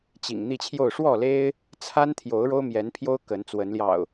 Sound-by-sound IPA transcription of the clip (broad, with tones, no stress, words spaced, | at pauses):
t͡ɕḭ˨˩ŋ n̪i˥˨t͡ɕʰjo˥˨ʊ̯ ʂwɔ˥˨le˦ɪ̯ | t͡sʰa˦nt̪ʰjo˨˦ʊ̯ ɻo˦ʊ̯mjɛ˨˦npʰjo˦ʊ̯ kə˨˦nt͡swə˨˦nljɑ̰˨˩ʊ̯